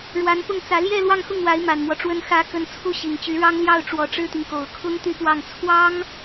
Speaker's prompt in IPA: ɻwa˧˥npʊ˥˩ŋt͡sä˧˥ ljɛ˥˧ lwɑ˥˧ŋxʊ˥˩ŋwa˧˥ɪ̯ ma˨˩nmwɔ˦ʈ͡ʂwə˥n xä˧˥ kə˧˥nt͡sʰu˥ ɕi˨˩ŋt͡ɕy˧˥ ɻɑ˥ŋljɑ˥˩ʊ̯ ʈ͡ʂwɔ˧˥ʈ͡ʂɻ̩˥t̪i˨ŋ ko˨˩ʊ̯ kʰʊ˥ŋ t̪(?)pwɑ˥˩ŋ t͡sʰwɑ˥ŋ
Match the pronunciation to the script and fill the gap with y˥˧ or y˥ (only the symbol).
y˥˧